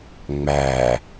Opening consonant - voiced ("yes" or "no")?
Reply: yes